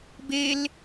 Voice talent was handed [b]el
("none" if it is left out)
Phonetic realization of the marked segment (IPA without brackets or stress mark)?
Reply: b